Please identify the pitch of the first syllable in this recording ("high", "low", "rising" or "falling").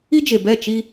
high